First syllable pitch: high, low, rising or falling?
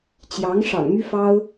rising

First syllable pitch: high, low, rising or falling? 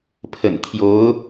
low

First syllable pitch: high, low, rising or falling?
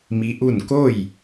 rising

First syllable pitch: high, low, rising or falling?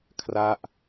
falling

